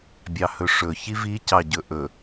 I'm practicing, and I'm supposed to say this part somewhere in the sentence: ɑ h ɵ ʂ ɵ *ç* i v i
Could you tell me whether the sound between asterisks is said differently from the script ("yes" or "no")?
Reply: no